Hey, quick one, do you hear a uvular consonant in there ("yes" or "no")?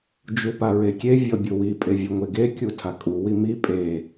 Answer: no